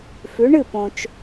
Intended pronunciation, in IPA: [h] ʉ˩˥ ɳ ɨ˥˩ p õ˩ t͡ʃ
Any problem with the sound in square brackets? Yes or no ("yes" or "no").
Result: yes